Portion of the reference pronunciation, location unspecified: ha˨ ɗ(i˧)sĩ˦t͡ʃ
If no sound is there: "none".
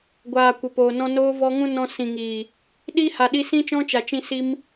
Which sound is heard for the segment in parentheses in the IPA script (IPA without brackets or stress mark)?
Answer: i˧